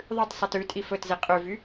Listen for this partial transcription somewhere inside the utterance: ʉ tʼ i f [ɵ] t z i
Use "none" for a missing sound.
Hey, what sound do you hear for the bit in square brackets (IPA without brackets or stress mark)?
ɵ